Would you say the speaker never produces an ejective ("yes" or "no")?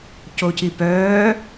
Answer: yes